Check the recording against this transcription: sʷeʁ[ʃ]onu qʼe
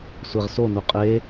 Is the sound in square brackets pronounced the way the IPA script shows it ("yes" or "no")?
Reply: no